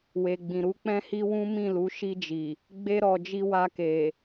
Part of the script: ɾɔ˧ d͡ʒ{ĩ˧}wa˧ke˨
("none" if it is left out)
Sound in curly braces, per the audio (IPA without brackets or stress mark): i˧